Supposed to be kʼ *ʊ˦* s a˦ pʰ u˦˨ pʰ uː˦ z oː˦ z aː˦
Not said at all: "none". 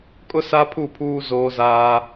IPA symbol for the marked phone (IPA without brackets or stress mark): ʊ˦